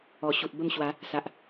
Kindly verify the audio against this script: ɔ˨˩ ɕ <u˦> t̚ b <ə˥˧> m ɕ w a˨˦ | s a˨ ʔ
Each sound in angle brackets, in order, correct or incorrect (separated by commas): incorrect, correct